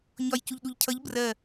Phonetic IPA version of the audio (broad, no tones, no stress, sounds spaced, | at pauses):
ɲ ɒ j c u ʎ ɗ u ʎ cʰ ʌ ʎ b r ɜ